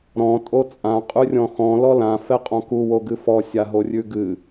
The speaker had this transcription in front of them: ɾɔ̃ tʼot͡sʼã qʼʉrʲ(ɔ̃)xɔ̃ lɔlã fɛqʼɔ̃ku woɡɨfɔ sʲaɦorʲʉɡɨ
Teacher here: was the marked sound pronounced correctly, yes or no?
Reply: yes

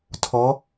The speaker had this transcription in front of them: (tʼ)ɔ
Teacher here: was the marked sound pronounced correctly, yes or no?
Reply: no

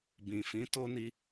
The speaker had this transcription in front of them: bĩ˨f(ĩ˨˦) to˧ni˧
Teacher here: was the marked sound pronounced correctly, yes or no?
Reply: yes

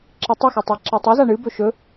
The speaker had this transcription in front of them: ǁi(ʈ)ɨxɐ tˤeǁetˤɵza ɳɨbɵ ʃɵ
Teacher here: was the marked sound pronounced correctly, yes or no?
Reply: no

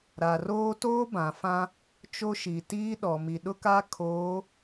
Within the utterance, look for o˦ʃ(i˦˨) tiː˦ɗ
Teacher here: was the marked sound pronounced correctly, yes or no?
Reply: no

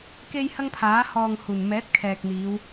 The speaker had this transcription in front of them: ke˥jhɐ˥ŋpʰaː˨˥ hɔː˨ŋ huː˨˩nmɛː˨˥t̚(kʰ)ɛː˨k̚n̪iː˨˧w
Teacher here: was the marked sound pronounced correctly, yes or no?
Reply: yes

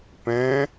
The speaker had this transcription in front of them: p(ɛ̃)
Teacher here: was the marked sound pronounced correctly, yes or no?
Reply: yes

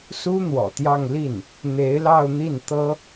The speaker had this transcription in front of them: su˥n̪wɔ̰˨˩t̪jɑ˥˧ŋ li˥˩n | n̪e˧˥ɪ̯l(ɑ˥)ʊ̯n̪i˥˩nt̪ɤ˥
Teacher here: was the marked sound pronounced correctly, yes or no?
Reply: no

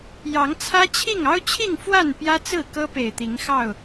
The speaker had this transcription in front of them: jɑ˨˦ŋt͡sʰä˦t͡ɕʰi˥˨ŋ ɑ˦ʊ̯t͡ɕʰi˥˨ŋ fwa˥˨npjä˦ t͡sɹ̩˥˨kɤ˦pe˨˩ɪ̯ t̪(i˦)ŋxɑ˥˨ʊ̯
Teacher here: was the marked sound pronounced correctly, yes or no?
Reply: no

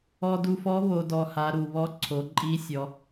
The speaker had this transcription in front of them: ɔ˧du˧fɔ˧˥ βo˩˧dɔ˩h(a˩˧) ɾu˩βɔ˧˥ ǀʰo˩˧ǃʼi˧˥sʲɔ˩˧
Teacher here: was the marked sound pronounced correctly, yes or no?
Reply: yes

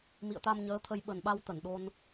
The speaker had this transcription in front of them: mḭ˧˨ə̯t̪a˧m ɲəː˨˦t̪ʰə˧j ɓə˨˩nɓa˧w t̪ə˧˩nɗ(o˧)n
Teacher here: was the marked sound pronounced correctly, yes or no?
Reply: yes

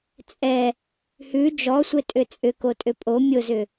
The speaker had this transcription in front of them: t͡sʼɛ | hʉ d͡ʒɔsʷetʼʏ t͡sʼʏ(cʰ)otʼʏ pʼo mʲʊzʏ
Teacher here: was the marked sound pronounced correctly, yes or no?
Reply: no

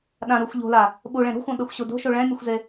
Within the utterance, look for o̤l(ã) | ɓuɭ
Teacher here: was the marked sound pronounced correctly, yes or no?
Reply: no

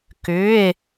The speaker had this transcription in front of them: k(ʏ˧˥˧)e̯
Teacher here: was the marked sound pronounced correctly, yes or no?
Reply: yes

